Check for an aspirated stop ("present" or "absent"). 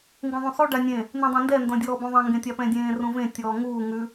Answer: absent